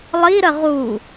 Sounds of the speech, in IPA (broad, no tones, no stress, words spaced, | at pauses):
lˠiɾə ʁu